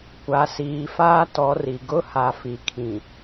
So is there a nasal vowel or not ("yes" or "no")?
yes